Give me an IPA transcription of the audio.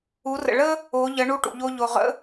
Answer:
u˩˧ r ə̰˩ ɭ ə˥ | o˩˧ ʎ ə˩˧ ɳ u˧ ʈ ṵ˩ ʎ o˧ ʎ o˩ ʁ ə̰˧˥

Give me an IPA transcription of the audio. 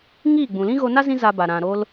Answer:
ŋ iː˦˨ ɡ͡b ũ˨ l ĩ˦ ɣ o˧ n a˦ z ĩ˦ z a˧ b a˨ ɾ ã˨ ɾ o˧ l

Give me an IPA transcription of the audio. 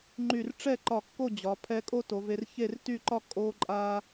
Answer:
ŋ͡ǃ y˧˩ r ʈ͡ʂ ɛ˥˧ ǃ ɒ˧˩ kː o˥˧ d͡ʑ ɒ˩˧ pʰ ɛ˧ kʼ o˥ t o˩˧ v e˧ r ç e˥˧ r t y˥˧ ǃ ɒ˥ kʼ o˧ ǃʼ a˥

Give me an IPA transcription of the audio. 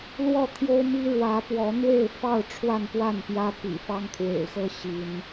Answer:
l w ɔ˥˨ t̪ʰ j o˦ ʊ̯ m i˦ ɻ w ä˨˦ p w ɔ˨˦ n̪ w e˥˨ ɪ̯ f ɑ˥˨ ʊ̯ ʈ͡ʂʰ w a˥˨ n p w a˥˨ n p j ä˦ p ḭ˨˩ f ɑ˦ ŋ t̪ʰ w ḛ˨˩ ɪ̯ x ɤ˦ ɕ i˨˦ n

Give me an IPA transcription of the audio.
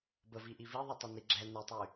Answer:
b ə v i ʔ i v i ðˤ œ tˤ ɛ n i ɡ͡ǁ ɛ n e tˤ y

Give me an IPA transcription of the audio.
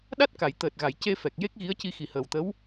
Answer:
ɗ a˦˥ t̚ k a˨˩˨ j t̪ əː˨˩ t̚ ɣ a˨˩˨ j c e˧ f ɛ˨˩ k̚ j e˦˥ k̚ ɣ i˧˥ ə̯ c i˧ x i˨˩ h əː˨˩ w t̪ ə˧˥ w

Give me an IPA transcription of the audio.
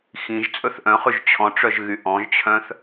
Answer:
x ĩ ʒ t͡sʼ ɵ θ ʔ œ̃ χ ʉ ʒ t͡ɕʰ ɔ̃ ʈ͡ʂ œ ʒ ɣ y ʔ ɔ̃ ʒ t͡ɕʰ œ̃ θ

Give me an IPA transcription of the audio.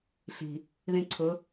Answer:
ɬ i̤ | ð ĩ ǀʰ ʊ

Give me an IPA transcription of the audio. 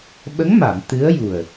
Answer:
ɓ ə˧˥ ŋ m a˨˩˨ m t̪ ɨ˧˥ ə̯ j u˨˩ ə̯

